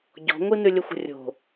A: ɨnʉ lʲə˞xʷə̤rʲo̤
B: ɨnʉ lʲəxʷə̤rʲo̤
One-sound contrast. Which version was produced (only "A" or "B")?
B